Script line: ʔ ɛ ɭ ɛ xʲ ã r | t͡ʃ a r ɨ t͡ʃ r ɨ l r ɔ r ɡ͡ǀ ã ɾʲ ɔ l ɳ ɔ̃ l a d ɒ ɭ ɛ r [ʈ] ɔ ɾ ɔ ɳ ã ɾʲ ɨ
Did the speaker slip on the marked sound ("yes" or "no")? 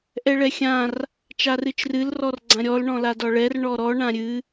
yes